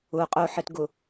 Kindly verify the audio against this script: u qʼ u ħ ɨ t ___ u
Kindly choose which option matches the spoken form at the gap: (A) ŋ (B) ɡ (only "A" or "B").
B